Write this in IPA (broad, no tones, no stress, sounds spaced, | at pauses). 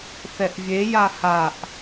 θ ɛ ʔ vʲ e j a h a ʔ